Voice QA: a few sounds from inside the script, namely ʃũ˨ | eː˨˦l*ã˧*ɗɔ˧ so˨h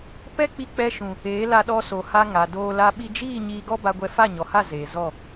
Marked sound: incorrect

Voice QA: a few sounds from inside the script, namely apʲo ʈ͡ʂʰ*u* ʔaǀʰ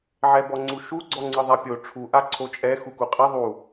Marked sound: correct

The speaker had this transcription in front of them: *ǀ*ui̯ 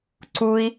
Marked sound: correct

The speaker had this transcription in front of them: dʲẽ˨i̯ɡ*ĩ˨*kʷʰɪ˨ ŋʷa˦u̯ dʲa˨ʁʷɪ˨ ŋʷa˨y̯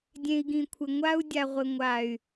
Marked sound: correct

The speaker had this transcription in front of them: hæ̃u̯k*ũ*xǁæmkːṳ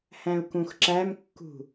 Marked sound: correct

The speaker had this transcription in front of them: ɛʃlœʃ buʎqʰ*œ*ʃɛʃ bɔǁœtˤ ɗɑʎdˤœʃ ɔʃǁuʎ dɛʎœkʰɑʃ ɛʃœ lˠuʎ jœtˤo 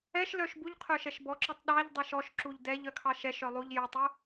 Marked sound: correct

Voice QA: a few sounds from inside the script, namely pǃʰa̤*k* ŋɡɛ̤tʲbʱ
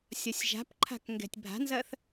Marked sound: correct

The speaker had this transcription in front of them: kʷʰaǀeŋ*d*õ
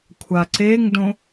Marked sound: correct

